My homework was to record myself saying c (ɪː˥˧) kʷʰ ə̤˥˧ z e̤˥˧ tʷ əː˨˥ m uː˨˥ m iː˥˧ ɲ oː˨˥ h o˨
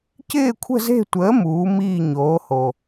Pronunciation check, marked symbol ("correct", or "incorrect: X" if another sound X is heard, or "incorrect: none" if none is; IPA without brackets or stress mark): correct